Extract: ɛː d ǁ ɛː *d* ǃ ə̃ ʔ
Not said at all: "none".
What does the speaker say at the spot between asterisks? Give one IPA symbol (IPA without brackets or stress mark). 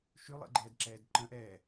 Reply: d